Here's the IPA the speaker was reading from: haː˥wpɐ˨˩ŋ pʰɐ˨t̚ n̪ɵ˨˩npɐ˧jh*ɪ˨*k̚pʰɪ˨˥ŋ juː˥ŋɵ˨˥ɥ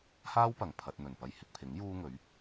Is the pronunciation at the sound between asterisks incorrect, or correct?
correct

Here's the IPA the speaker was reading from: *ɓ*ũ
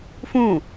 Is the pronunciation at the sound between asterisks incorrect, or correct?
incorrect: f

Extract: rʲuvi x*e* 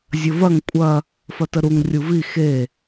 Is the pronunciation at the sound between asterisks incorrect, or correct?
correct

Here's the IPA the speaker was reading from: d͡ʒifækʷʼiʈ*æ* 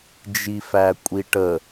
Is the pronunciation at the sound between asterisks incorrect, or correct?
incorrect: ə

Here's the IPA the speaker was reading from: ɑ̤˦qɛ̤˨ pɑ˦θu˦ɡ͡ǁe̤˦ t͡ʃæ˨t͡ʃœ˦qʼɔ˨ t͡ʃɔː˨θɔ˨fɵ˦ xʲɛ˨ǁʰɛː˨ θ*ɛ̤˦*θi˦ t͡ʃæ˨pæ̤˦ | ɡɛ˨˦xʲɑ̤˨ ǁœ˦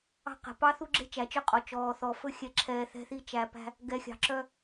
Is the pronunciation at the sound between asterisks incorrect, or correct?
correct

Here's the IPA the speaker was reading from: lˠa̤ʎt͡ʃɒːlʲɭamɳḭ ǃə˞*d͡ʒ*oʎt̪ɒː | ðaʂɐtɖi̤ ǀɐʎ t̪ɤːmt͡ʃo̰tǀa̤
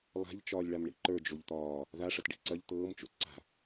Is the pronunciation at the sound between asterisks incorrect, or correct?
correct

